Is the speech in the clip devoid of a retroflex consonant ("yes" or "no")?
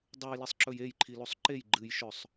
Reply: yes